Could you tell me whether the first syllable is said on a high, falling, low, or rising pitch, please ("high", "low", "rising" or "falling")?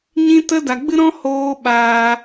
high